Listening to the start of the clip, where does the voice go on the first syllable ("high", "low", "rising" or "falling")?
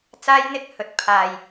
high